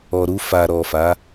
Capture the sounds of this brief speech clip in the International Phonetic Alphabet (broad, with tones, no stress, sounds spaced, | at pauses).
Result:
ɔ˨ ɾ u˧ f a˨ ɾ ɔ˨ f a˨˦